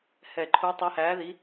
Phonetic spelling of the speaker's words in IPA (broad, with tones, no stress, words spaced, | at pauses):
hɛ˧˩ ǃʰu˧˥tˤəː˧˥hæː˧˥ði˧˥